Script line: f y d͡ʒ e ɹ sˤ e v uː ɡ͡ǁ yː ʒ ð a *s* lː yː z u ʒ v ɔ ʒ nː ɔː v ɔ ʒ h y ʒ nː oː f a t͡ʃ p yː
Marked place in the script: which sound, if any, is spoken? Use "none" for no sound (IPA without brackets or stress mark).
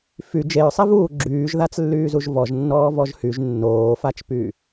t͡s